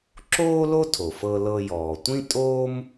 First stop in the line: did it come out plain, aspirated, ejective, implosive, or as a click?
click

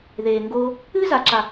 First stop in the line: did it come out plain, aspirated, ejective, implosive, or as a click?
plain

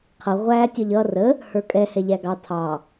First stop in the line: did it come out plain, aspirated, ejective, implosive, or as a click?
aspirated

